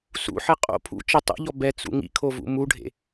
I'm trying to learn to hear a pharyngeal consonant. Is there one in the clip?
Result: yes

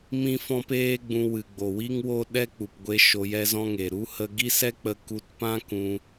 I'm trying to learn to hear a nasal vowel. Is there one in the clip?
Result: yes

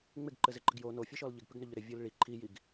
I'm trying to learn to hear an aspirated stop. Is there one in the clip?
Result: yes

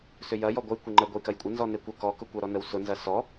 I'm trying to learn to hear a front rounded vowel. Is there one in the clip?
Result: yes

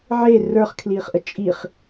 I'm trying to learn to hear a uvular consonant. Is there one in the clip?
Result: yes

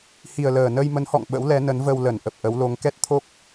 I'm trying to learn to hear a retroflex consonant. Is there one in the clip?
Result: no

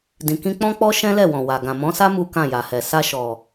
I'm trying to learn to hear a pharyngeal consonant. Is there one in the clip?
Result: no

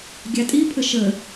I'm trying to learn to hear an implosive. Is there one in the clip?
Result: no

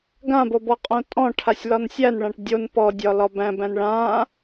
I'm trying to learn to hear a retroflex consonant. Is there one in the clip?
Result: yes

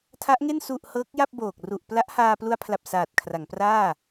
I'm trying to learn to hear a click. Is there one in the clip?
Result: no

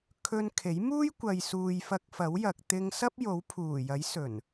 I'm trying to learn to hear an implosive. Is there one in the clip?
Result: no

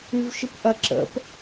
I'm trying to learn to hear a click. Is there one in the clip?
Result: yes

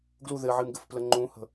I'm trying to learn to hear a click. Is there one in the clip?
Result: yes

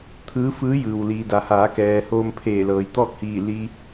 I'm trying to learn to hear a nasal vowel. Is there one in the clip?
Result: no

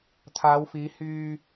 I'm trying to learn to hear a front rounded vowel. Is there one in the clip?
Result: yes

